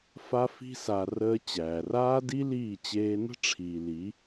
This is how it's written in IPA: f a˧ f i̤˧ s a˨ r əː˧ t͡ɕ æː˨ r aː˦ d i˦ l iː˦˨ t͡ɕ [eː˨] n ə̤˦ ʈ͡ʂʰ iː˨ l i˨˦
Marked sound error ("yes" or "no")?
yes